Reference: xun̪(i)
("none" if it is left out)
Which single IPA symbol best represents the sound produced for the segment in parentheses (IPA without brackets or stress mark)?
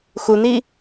i